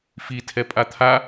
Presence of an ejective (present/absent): present